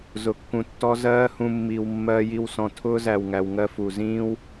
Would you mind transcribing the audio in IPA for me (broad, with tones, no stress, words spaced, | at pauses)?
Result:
zʊ˨kːũ˨tːɔ˧ zɜː˦hũ˧ mːi˨w mːɜ˧ji˧w sɔ̃˨tʰʊː˧zæ˨w ŋæ˨wŋɜ˧fu˨zĩː˦w